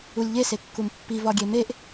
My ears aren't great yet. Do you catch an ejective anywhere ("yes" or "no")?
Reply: no